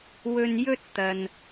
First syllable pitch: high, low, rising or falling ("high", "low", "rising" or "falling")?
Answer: low